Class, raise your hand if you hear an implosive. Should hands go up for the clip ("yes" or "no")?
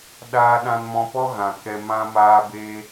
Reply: yes